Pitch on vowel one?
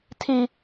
high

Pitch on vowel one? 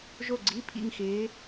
falling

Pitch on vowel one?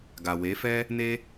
low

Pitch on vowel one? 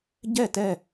falling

